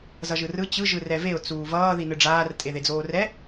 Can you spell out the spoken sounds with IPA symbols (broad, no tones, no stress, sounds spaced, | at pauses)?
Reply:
z ʌ ʒ ɯ r ɯ t͡ɕ ɯ ʒ ɯ r ɛ v e ʊ̯ t͡s uː v ʌː ð i n ɯ ɖ͡ʐ aː r tʼ e ð e d͡z oː r ɛ